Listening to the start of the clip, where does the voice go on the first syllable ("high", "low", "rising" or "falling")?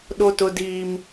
high